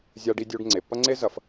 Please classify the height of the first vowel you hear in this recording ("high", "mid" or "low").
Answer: low